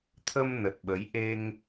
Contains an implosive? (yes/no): yes